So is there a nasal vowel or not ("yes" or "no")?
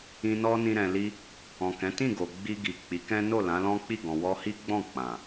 yes